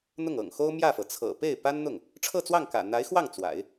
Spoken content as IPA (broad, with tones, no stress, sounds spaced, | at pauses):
n̪ ʊ˥˩ ŋ ɤ̰˨˩ ŋ x o˥ ʊ̯ m j ä˥˩ f ɤ˩ t͡sʰ ɤ̰˨˩ p e˥˩ ɪ̯ p a˥ n n̪ ʊ˥˩ ŋ | ʈ͡ʂʰ ɤ˥˧ t͡s w ɑ˥˩ ŋ k ä̰˨˩ n̪ a˧˥ ɪ̯ x w ɑ˥˩ ŋ t͡s w a̰˨˩˦ ɪ̯